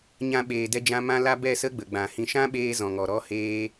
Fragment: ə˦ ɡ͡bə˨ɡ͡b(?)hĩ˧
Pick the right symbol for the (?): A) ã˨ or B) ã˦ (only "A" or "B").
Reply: A